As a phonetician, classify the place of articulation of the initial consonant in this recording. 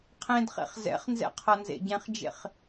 uvular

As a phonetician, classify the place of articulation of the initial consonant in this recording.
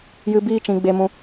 palatal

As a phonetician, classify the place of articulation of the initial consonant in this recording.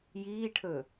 palatal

